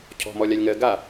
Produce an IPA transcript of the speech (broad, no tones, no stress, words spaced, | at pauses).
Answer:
cʰɔ̤mɔ lʲalʲŋɜ ɡa